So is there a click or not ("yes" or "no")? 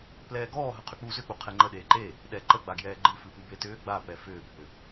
yes